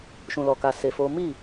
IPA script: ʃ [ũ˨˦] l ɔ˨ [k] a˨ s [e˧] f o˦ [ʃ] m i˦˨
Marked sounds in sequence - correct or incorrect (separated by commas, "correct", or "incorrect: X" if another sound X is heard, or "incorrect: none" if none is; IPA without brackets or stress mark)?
incorrect: ũ˨, correct, correct, incorrect: none